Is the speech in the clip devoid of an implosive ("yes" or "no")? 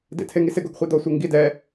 yes